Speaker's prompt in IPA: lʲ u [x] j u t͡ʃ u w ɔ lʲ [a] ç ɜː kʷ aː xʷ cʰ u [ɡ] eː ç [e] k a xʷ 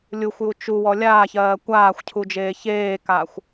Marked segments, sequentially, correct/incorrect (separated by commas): incorrect, incorrect, incorrect, incorrect